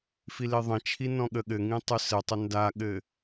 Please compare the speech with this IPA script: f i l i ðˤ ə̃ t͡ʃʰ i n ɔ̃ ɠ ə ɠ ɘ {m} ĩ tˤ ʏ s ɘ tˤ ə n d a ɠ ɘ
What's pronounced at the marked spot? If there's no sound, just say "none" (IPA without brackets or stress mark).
ŋ